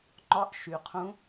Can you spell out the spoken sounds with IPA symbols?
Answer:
ŋ͡ǃ ɒ˧˥ ʔ ʃ y˩ qʰ ũ˧˥

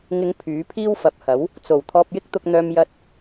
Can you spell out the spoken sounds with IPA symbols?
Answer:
ŋ ɪ˨˧ ŋ pʰ yː˨˥ pʰ iː˥ w f ɐ˨ p̚ h ɐ˨˥ w | t͡s o˨˩ w t̪ʰ ɔː˧ p̚ j ɪ˥ k̚ t̪ ʊ˧ k̚ n̪ œː˧ m j ɐ˧ t̚

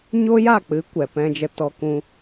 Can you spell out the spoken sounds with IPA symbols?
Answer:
ɲ o˦ j a˦˨ k͡p ɨ˨˦ kʷ ɛ˨ p ɛ̃˧ d͡ʒ ə˧ t ɔ˧ k ũ˧

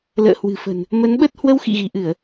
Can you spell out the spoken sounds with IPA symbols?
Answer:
l ə̰ː˧˨ h w ɨ̤˨˩ f ə̤˨˩ n | m ə˨˦ n ɓ ə˦˥ t̚ h w ə˧ w x ḭ˧˨ ɣ i˧˩ ʔ ɨ˧˩˨ ə̯

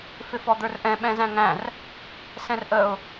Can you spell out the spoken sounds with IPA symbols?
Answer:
f ɪ f ɔ d̪ ə˞ r ʔ ɛ̃ ɓ ɛ̃ z æ̃ ŋ æ̃ r | s ɛ̃ r ʔ ə ʊ̯

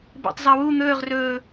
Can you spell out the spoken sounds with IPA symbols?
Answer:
b ḛ tˤ zˤ a w u n̪ ɵː ʁ r ɵː

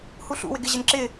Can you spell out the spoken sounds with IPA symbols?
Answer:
h u ɬ ṵ w ɪ ɡ ɪ ʑ ɪ n ǁ ɪ

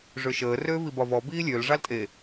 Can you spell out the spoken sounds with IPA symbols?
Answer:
ʐ ø ʃ əː r øː v i b ɒ v ɔ b iː lʲ ø l ʐ ɑ l tʼ e

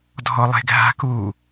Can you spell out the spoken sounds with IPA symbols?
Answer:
dʱ ɔ lˠ e̤ ɡʱ a̤ k u

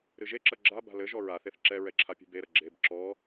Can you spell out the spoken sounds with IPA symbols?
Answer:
ɾ ɨ ʒ e ǁ ɐ ɡ͡ǁ a b a̤ l ɘ ʒ ɔ ɹ a θ e θ ǁ ɛ ɹ ɛ ǁʰ a pʲ ṳ b e ɾ ɐ ɡ͡ǁ e b ǁ ɔ

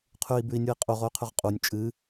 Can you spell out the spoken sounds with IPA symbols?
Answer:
qʰ ʉ i̯ b ʉ i̯ nʲ u i̯ qʼ u ʁ o y̯ qʰ ʉ ʁ qʼ u nʲ t͡ʃʼ ɨ

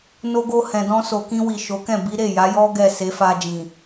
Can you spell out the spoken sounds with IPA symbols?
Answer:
n o˧ ɡ o˧ h ɛ̃˨ d ɔ̃˧ s o˨ k ĩ˧ w i˨ ʃ o˨˦ k ɛ̃˦˨ b i˨˦ ɾ e˦˨ j a˨˦ j ɔ˦ ɡ ɛ˦˨ s e˨˦ f a˧ d͡ʒ ĩ˨

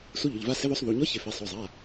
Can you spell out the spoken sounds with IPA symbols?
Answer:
s u˧˥ ʎ ʊ˩˧˩ ʎ v a˧˥ s ɪ˧˥ ð o˧˥ sˤ ð u˩˧˩ ɲ ɔ˧˥ ç ɪ˩˧˩ f e˩˧˩ sˤ o˩˧˩ zˤ a˩˧˩

